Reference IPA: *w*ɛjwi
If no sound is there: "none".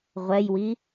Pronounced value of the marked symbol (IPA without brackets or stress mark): ʁʷ